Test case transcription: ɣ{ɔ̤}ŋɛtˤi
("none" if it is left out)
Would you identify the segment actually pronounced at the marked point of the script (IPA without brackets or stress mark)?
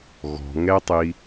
ɔ̤